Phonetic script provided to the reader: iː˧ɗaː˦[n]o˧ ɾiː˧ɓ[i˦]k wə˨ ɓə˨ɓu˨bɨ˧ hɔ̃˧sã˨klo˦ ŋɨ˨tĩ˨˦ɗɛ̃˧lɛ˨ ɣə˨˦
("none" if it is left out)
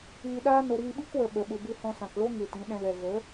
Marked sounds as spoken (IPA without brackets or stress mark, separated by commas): n, i˦